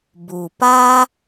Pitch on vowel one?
low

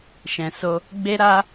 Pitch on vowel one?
low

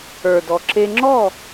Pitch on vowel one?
low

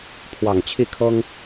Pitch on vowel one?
low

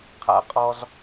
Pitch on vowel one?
high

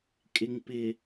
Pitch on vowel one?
low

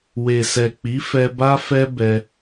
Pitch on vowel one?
low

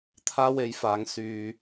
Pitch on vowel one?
high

